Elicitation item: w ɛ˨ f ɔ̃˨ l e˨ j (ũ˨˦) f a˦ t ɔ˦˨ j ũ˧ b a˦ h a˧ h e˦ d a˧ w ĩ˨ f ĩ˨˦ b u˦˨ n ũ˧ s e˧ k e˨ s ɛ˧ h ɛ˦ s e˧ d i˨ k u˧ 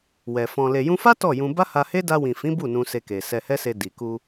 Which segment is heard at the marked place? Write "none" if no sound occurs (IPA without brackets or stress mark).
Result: ũ˧